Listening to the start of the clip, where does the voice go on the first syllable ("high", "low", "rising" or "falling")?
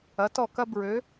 rising